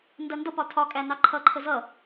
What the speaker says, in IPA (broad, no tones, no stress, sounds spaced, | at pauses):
n d ɜ n d ʌ p ɒ tʰ ɒ kʼ æ n ɑ ǃʰ ʌ ǃʰ ə z ʌ